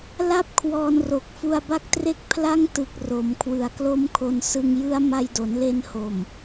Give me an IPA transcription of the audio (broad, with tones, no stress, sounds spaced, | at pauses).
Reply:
l a˥˩ p̚ kʰ w ɔː˧ n r o˨˩ k̚ f u˧ a̯ b a˦˥ k̚ t r e˦˥ k̚ pʰ l a˥˩ ŋ t ɯ˨˩ k̚ r o˩˦ m kʰ w ɯ˨˩ a̯ k l o˦˥ m kʰ o˧ n s ɯ˧ ŋ j ɯ˦˥ a̯ m a˧ j d o˩˦ n l e˧ n h o˨˩ m